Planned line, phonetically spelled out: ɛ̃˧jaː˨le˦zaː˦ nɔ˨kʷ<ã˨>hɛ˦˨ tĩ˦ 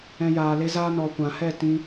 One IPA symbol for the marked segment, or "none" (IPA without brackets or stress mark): ã˨